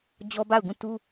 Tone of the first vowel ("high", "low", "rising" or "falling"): high